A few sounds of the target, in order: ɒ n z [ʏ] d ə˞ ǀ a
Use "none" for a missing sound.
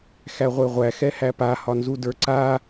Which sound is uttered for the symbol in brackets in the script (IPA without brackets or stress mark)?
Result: u